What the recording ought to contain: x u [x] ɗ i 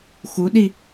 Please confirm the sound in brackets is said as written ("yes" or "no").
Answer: no